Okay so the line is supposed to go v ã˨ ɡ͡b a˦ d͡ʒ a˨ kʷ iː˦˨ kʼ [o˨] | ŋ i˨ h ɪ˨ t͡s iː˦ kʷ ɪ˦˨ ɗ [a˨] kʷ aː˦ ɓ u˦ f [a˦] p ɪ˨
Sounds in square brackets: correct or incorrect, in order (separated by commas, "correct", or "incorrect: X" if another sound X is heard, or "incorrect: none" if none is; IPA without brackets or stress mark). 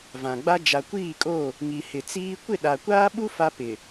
incorrect: o˦˨, correct, correct